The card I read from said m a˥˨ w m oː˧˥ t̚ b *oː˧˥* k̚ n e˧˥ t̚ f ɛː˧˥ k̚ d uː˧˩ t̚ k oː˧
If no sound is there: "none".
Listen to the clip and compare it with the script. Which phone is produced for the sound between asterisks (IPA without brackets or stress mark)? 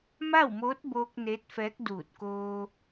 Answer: oː˧